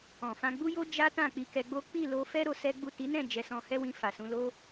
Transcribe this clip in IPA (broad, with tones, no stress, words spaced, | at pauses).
ɔ̃˨fã˧ɡ͡bu˦jo˦ d͡ʒa˦ tã˦˨k͡pi˧kɛ˧ɡ͡bo˦ k͡pi˦˨lo˧fɛ˦ ɾo˧sɛ˦ɡ͡bu˦˨ ti˨˦nɛ̃˦˨ d͡ʒɛ˧sɔ̃˧hɛ˦wĩ˧ fa˨sũ˨˦lo˦